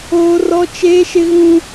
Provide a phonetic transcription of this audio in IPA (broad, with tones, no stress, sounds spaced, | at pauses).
oː˦ r ɔ˦ t͡ʃ eː˦ ʃ ɪ˦ ɣ ũ˦